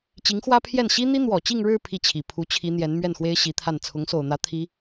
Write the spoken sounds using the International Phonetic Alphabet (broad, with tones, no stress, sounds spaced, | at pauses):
t͡ɕ i˧˥ ŋ x w ä˥ pʰ j ɛ˥˩ n ɕ i˥ n̪ i˥ n̪ w ɔ˨˩ t͡ɕ i˥˧ ŋ ɻ ɻ̩˥˧ pʰ i˥˩ t͡ɕʰ i˨˩ pʰ u˧˥ t͡ɕʰ i˧˥ n̪ j ɛ˧˥ n m ɥ ɛ˥˩ n x w e˥ ɪ̯ ɕ i˧˥ t̪ʰ a˥˩ n t͡sʰ ʊ˧˥ ŋ s o˨˩ ʊ̯ n̪ ä˧˥ t̪ʰ i˧˥